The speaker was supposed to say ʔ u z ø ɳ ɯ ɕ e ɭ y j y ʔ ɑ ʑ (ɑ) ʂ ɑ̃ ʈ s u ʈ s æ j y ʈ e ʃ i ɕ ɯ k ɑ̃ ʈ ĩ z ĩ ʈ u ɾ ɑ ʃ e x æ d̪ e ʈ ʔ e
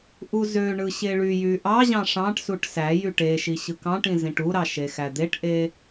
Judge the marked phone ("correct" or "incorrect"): incorrect